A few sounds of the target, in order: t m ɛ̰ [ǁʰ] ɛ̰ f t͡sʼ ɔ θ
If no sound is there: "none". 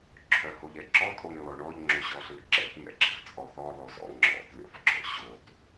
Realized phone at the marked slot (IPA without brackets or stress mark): ɡ͡ǁ